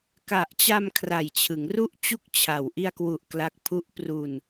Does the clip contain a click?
no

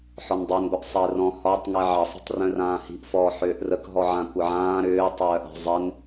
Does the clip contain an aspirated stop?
no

